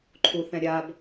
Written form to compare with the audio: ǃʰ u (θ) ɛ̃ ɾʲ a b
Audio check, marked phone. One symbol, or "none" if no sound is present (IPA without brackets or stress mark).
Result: θ